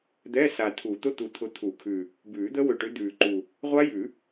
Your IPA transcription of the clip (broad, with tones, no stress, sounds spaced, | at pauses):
d̪ ɛ˧˥˧ s a˨˩ tʰ u˨˩˦ t̪ ʊ˧˥˧ t̪ u˨˩ t̪ʰ ʊ˨˦ t̪ʰ u˨˩˦ kʰ ʉ˨˩ | b ʉː˨˩˦ d̪ ə˦˥ w ʏ˨˩ ʈ ʏ˨˦ d̪ ʉː˨˩ ǃ u˨˩ | ʁʷ a˦˥ j ʉ˨˩˦